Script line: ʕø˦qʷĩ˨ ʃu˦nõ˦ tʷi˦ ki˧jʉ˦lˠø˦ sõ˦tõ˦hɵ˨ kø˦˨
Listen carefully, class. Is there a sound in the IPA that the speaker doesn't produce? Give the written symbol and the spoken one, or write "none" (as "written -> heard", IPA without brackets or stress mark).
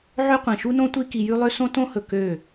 none